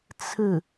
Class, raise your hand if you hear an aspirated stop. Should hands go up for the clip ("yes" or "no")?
yes